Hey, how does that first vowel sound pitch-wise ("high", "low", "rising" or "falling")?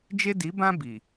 high